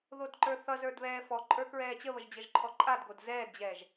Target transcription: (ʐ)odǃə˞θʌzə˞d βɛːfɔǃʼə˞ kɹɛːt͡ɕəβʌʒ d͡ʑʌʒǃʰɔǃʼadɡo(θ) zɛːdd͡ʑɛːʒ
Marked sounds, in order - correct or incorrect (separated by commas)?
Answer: incorrect, incorrect